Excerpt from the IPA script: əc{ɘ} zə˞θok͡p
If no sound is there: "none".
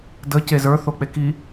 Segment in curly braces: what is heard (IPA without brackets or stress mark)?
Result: e